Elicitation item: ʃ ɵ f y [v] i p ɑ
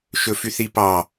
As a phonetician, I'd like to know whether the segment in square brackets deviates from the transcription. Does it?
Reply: yes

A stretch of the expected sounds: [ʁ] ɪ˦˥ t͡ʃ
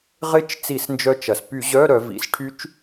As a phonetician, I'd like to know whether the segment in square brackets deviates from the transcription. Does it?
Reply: no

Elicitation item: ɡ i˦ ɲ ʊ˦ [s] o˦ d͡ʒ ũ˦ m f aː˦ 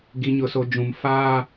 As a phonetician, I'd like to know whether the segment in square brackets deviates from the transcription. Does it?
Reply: no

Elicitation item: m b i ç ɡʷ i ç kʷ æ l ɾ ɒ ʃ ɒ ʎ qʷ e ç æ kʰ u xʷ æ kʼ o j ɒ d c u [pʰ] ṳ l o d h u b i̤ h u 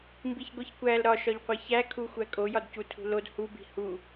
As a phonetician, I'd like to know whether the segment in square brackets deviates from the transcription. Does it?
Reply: yes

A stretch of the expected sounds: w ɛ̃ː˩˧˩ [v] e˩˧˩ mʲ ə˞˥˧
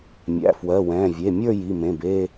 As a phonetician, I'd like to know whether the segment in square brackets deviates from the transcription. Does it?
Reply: yes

